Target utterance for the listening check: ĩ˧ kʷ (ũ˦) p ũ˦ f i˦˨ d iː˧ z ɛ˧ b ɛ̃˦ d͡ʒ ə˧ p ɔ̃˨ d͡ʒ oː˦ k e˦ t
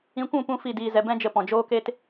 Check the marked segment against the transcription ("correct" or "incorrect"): incorrect